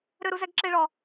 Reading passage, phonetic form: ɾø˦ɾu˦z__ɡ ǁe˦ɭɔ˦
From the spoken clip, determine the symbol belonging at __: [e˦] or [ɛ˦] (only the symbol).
ɛ˦